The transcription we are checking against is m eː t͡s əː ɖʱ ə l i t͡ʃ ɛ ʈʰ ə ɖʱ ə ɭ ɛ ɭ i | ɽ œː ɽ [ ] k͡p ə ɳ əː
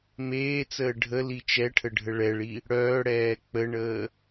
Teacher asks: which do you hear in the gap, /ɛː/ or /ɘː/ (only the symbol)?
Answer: ɛː